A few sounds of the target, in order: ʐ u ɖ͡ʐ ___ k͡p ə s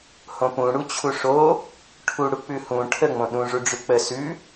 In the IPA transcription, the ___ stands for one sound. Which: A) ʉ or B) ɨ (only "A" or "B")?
A